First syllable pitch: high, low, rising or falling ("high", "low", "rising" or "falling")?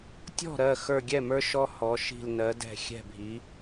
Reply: falling